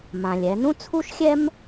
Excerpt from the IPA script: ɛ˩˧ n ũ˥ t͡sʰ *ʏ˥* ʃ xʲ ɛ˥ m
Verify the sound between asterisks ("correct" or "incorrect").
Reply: incorrect